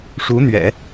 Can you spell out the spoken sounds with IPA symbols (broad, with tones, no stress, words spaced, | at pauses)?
ʂu˧˥n̪ɥɛ̰˨˩˦